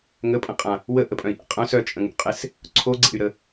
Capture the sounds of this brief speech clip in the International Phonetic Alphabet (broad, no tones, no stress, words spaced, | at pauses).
ŋəpʼə̃qʼã | wəʔəpʼœ̃i̯ʔḛ qʼœ̃s œt͡ʃʼə̃ŋṵqʼes | ǀʰoɡ͡ǀḛy̯ɾə